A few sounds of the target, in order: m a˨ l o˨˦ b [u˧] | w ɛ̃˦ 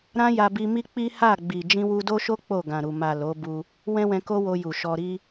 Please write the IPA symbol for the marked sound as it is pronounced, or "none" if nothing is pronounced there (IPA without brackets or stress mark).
u˧